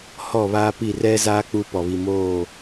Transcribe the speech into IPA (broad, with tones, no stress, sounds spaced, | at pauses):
h ɔ˦˨ β aː˦ p i˦˨ r ɛ˦ z aː˦ k͡p u˦ p ɔ˨ β i˨ m oː˦˨